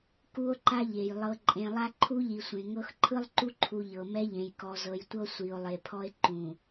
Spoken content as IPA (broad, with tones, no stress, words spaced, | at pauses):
ku˦o̯ǃa˦ʎe˨j lˠɤ˨ ǃʼẽ˨ lˠa˦ǃʰu˦ʎi˨sʷẽ˨ ŋɤ˦x ǃʰɯ˦lˠǃu˦ǃʰu˨ ʎɤ˨mɛ˦ʎẽ˨j kɔ˨zɤ˨jtʷɤ˦ sʷi˨o̯lˠe˨pʰɔ˦e̯ ǃũ˨